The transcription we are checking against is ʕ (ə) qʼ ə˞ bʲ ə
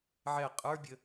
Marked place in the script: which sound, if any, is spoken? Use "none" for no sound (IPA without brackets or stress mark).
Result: ɛ